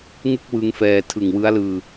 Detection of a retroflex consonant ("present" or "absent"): absent